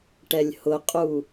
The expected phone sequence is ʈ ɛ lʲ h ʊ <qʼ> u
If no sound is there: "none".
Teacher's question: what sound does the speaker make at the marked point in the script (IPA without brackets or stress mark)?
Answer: qʼ